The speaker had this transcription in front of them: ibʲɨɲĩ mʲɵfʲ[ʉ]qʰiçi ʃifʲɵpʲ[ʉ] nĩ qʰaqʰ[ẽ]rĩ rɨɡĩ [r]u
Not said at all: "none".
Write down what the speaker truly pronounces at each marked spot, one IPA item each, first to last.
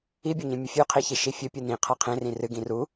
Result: ʉ, ɨ, ẽ, r

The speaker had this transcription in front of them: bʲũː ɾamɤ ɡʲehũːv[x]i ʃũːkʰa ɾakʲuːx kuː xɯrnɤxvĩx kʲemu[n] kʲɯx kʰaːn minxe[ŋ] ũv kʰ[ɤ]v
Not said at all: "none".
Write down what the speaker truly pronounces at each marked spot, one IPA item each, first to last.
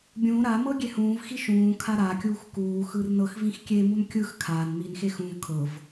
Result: x, n, x, ɤ

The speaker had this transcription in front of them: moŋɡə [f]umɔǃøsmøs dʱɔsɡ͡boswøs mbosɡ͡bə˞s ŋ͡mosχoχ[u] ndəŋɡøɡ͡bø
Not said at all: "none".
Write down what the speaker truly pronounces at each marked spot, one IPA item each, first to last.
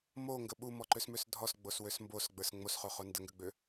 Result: ɓ, o

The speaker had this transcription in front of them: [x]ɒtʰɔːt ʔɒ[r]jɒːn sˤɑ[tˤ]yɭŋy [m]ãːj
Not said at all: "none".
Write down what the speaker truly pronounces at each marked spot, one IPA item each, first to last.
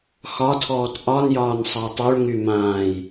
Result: x, n, tˤ, m

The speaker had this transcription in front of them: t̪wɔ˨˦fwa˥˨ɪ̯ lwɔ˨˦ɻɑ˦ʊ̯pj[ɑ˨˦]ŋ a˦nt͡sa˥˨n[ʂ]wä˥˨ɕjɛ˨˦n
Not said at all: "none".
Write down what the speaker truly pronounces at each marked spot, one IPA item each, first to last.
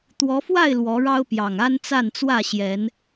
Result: ɑ˨˩, t͡s

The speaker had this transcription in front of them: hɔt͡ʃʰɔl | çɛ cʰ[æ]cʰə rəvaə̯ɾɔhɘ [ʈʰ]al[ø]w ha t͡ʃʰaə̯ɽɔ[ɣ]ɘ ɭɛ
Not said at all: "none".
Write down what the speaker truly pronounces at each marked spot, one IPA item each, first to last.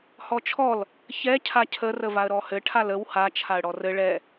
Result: a, ʈʰ, ə, r

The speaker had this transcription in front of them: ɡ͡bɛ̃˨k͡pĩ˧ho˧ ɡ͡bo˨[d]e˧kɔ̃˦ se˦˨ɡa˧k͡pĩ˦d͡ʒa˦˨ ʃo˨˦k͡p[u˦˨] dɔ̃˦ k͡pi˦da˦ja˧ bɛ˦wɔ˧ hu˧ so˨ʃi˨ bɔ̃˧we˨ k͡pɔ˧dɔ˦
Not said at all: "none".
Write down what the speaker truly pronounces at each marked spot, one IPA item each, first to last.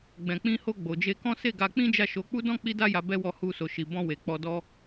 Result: d͡ʒ, u˦

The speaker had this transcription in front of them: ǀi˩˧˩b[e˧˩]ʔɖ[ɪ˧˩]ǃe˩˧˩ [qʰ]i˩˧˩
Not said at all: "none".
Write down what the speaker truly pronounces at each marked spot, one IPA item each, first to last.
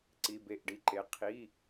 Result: e˧˩, i˧˩, qʰ

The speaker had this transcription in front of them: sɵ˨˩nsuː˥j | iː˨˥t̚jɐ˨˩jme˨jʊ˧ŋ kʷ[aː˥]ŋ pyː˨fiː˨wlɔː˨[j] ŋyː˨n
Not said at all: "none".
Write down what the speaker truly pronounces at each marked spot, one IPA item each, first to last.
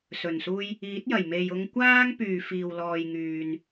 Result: aː˥, j

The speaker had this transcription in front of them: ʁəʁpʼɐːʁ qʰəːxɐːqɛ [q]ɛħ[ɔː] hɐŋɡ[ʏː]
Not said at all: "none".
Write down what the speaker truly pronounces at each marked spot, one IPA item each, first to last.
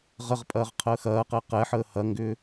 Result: q, əː, ʏː

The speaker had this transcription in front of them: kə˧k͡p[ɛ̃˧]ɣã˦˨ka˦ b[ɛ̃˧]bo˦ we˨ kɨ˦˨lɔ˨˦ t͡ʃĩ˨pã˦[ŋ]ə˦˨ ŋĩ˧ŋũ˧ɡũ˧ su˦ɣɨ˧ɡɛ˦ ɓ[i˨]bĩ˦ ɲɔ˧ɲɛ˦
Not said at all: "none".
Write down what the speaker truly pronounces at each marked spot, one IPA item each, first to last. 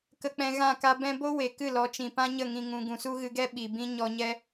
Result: ɛ̃˧, ɛ̃˧, ɲ, i˨

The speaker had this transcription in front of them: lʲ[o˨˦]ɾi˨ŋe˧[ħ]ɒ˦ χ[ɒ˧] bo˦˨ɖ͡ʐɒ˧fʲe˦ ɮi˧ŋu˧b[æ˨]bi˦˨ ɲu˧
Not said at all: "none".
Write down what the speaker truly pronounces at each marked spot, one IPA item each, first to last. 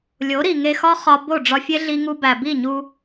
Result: o˨˦, x, ɒ˧, æ˨

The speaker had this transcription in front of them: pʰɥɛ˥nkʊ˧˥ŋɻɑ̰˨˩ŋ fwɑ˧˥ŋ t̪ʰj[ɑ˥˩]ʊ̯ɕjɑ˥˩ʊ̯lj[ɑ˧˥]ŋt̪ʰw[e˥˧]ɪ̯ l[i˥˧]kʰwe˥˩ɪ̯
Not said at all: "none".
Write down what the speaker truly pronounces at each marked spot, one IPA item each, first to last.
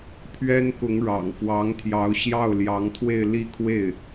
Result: ɑ˧˥, ɑ˧˥, e˥˧, i˥˧

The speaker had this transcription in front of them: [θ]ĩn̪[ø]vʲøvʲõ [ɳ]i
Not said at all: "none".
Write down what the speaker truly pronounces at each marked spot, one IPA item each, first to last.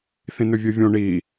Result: θ, ø, ɳ

